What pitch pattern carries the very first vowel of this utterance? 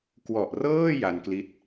low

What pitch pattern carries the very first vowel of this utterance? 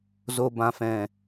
low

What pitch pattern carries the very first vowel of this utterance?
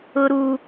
high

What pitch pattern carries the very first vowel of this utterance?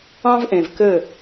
high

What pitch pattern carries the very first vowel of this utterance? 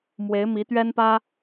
rising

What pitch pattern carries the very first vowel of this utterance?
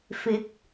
rising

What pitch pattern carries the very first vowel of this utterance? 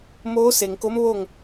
rising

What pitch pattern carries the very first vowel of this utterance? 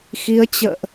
rising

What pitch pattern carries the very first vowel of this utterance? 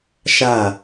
falling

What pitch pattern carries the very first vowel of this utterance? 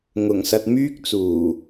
low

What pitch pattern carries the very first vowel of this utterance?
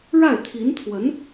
falling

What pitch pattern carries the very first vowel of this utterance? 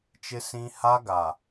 high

